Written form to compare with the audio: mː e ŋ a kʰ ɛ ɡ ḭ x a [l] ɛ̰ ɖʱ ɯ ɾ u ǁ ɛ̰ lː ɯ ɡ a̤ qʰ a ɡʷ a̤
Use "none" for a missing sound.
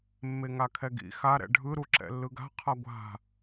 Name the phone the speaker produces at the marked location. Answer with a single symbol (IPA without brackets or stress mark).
ɾ